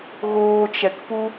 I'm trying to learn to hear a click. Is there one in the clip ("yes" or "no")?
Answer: no